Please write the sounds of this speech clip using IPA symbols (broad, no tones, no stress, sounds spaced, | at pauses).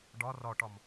ɖ ɒ r ɒ ʈ ɒ m